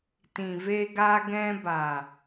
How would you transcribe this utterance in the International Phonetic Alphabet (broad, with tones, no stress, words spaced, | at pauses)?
tĩ˨ve˧ɡaː˧ɡɛ̃˧ ba˨